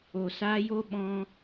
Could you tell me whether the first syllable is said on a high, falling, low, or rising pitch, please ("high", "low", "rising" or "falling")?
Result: low